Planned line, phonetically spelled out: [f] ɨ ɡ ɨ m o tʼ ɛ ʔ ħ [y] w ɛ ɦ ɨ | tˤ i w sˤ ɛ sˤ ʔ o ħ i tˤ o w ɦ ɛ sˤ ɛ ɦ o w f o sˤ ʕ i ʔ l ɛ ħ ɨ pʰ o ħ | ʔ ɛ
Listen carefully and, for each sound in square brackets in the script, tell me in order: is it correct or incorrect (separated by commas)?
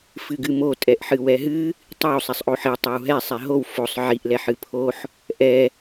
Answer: correct, incorrect